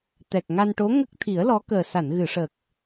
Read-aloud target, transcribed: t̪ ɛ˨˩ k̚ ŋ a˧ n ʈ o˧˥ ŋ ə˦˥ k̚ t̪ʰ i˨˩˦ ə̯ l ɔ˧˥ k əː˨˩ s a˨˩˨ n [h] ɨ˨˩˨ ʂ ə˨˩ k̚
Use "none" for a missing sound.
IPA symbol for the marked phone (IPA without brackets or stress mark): ɣ